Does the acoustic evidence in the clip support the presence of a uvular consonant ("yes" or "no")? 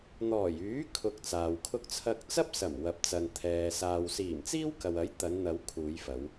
no